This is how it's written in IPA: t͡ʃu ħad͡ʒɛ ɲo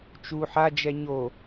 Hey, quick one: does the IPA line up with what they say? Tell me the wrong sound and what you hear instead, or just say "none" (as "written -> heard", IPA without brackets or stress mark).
none